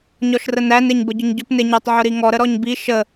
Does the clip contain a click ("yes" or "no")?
no